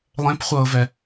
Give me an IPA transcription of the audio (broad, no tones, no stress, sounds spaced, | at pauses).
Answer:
lˠ ẽ p χʷ ɤː v ɛ